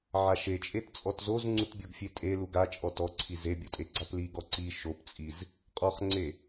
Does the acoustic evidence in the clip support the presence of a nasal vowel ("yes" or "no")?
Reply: no